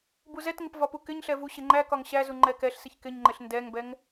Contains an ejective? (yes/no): no